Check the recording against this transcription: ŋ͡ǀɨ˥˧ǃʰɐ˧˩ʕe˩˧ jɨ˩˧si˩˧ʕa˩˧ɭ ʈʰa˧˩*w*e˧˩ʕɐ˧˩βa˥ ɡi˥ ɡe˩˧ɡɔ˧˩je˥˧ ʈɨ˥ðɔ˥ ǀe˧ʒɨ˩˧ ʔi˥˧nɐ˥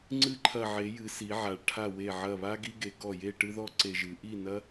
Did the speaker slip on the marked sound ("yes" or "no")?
no